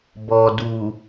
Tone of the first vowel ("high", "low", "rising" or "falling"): low